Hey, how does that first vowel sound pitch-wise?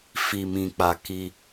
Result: low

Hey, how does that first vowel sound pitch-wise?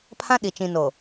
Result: high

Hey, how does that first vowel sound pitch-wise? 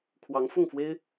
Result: rising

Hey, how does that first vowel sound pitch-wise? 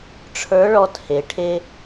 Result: rising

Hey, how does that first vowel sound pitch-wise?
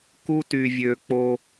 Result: high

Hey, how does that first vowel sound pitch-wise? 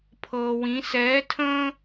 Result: low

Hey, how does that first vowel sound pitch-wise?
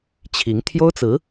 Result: rising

